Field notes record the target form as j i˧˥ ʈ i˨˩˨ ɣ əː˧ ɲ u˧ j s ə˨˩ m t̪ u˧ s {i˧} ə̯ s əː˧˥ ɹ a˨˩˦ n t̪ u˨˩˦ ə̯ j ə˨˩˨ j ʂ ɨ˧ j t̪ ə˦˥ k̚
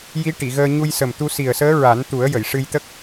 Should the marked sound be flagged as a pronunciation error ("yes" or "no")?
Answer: yes